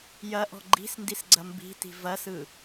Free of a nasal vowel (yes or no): yes